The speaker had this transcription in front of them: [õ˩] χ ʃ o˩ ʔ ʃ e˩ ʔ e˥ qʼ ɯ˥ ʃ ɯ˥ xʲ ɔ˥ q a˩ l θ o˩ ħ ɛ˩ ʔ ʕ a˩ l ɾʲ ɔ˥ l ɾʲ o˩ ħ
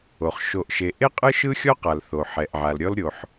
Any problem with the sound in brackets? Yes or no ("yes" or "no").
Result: yes